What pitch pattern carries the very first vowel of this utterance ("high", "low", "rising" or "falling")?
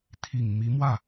low